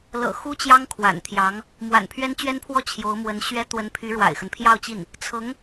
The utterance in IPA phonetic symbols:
l ɤ̰˨˩ x u˥ t͡ɕ j ɑ˥ ŋ kʰ w a̰˨˩ n t̪ʰ j ɑ˧˥ ŋ | m w a̰˨˩ n pʰ ɥ ɛ˥ n t͡ɕ ɥ ɛ˥ n pʰ w ɔ˥ t͡ɕʰ j o˧˥ ʊ̯ m w ə˧˥ n ɕ ɥ ɛ˥ t̪ w ə˧˥ n pʰ y˧˥ ɻ w a̰˨˩ ɪ̯ x ə˦ n pʰ j ɑ˥˧ ʊ̯ t͡ɕ i˥˩ n | t͡sʰ ɤ˧˥ ŋ

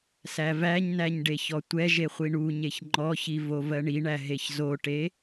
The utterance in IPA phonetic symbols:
s æ v æ ɲ n æ ɲ ɖ e ç ɔ tʷ ɛ ʒ e χʷ i ɳ u ɲ e ç ŋ͡ǃ ɔ ç i v o v ɜ ɳ i ɳ æ ɦ e ç z o ʈ e

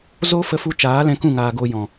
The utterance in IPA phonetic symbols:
z o˦ f ə˧ f u˧ t͡ʃ aː˨˦ l ɛ̃˧ k ũ˦˨ ŋ aː˨ ɡ o˧ j ɔ̃˨

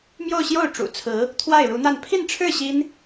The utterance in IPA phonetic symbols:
m j o˥˧ ʊ̯ ɕ j o˥˩ ʊ̯ ʈ͡ʂ ṵ˨˩ t͡sʰ ɹ̩˧˥ | t̪ʰ w a˥˩ ɪ̯ ɻ u˧˥ n̪ a˥˧ n pʰ i˥˧ n ʈ͡ʂʰ ɻ̩˥˩ ɕ i˥ n

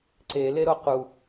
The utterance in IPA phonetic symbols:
ǀ e l e ɾ o q u

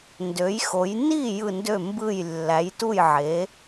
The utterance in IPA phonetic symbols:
n d ø˩˥ j x o˩˥ j n i˥˩ j ɯ˥˩ n d ø˥˩ m b ɯ˥˩ j lː æ˩˥ j t u˥˩ j ʕ e˩˥

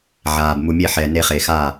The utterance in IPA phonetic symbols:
ʕ aː˩ b m u˩ mʲ e˧˩ ħ ɛː˩ n e˨˩˦ χ e˩ x aː˧˩

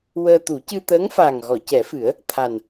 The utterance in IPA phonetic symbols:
w əː˧ t̪ u˨˩˦ c ɨ˧ t̪ əː˧˥ ŋ f aː˨˩ ŋ ɣ ɔ˨˩˨ c ɛ˨˩˦ f ɨ˨˩˦ ə̯ | t̪ʰ a˨˩ n

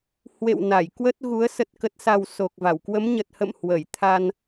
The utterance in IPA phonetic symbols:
h w ḛ˧˨ w n a˧˩ j k w ə˦˥ t̚ ɣ u˨˦ ə̯ s ə˨˩ t̚ k ə˨˩ t̚ s a˨˩ w s o˨˩ k̚ v a˧˩ w k w ə˨˦ m ɲ ə˨˩ t̚ h ə̰˧˨ m h w ə˧˩ j t̪ʰ a˧ n

